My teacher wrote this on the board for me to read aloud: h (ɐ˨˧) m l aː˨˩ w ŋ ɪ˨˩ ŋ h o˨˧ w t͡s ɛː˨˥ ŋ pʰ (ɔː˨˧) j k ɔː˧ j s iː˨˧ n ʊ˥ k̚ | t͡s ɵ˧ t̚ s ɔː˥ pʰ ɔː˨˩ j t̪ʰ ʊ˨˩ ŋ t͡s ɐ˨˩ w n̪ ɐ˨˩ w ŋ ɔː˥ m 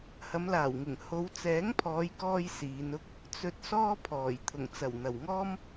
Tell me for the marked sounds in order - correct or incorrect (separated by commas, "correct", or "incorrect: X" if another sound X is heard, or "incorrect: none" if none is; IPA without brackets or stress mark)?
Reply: correct, correct